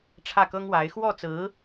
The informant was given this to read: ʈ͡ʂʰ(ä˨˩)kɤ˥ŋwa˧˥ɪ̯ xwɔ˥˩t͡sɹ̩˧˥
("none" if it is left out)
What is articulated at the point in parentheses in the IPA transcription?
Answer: ä˥˩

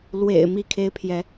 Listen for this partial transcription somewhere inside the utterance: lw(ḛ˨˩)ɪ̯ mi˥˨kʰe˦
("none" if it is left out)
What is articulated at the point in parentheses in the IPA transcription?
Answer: ḛ˨˩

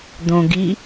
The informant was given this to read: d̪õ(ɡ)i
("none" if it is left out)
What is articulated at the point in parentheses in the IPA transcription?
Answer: ɡ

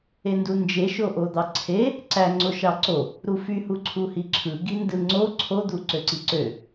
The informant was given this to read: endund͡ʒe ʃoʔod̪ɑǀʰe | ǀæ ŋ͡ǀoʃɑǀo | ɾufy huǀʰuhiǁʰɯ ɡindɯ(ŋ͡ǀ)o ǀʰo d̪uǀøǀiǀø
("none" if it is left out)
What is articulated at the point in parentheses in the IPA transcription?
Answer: ŋ͡ǀ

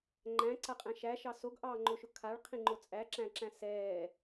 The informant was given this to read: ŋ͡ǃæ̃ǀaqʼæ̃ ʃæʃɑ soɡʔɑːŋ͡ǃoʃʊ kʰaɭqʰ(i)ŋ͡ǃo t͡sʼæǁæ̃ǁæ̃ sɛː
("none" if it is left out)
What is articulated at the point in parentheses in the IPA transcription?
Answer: ĩ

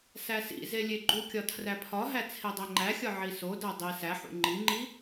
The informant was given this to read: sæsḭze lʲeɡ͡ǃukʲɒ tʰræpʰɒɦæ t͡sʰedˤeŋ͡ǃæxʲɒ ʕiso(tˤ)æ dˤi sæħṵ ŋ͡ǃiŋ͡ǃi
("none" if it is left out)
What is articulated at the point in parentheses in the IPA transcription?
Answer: d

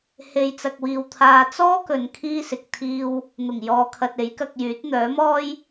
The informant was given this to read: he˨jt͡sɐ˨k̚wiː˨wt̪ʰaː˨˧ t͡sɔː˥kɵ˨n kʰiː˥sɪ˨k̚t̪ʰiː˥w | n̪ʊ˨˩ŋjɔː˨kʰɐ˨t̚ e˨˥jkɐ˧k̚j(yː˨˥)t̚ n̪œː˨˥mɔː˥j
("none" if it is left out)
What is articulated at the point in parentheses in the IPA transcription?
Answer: yː˨˥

